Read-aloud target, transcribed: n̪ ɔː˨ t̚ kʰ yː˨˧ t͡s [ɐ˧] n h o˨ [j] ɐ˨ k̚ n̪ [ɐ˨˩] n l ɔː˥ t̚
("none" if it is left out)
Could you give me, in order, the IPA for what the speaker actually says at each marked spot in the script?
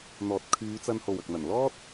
ɐ˧, w, ɐ˨˩

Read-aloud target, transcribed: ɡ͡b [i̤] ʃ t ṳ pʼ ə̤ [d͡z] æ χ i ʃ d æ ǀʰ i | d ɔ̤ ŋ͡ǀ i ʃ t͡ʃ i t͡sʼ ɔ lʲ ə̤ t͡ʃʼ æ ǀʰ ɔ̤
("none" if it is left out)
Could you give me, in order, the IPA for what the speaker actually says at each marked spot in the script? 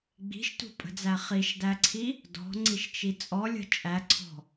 i̤, d͡z

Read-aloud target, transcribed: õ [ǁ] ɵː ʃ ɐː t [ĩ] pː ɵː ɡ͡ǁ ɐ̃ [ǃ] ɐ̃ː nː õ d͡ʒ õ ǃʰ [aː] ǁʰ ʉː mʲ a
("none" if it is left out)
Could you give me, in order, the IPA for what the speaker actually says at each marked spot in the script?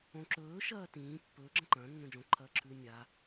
ǁ, ĩː, ǃ, ɐː

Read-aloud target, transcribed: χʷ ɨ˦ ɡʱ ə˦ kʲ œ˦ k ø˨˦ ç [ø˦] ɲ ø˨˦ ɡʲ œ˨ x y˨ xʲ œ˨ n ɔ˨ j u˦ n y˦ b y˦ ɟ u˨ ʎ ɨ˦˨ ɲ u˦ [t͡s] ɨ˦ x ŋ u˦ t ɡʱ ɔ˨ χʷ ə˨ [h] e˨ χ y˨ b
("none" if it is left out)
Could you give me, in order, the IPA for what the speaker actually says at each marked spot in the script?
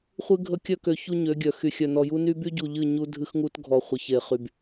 u˦, dʱ, ç

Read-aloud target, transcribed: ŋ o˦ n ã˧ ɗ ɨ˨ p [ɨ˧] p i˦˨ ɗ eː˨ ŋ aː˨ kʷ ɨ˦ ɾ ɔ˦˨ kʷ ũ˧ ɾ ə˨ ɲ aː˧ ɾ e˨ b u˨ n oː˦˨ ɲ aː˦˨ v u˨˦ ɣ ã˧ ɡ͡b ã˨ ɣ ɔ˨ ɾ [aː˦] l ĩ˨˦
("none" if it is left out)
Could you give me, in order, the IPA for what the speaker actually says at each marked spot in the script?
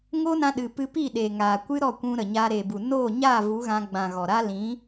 ɨ˧, aː˦

